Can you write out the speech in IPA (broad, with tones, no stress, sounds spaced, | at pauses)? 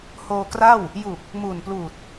h oː˧ k r a˥˩ w | j u˨˩ k̚ | m uː˨˩ n p l uː˨˩ t̚